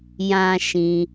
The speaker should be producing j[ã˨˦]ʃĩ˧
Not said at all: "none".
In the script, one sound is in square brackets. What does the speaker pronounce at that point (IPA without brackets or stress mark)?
ã˦